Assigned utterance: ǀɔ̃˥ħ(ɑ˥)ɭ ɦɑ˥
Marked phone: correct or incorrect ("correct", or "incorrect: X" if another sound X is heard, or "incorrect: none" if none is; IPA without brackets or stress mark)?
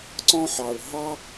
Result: incorrect: ɑ˨